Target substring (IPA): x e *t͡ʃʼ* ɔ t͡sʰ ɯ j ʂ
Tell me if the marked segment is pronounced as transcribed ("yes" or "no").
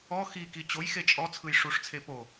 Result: yes